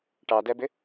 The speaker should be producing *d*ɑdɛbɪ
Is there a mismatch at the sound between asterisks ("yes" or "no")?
yes